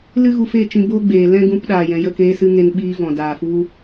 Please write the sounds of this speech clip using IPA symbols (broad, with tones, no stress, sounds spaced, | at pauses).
l ɨ˦ ɣ u˧ f e˦˨ t͡ʃ ĩ˧ b o˦ ɡ͡b eː˨ l ɛ̃˦ ɡ ũ˧ p ɗ aː˨ j ɛ̃˨ j ə˦˨ k eː˧ s ɨ˧ ŋ e˧ n ɓ iː˧ v ɔ̃˨ d aː˨ f u˧